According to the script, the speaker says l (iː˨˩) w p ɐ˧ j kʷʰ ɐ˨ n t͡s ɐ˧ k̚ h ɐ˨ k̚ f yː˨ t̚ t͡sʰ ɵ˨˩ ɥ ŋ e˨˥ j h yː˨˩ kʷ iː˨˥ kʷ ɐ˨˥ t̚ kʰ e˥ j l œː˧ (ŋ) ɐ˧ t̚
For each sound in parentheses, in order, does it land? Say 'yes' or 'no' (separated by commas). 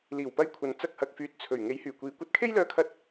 yes, no